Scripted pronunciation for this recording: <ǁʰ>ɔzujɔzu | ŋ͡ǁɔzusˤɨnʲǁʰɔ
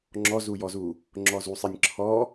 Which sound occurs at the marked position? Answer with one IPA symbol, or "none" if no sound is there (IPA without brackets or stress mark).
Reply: ŋ͡ǁ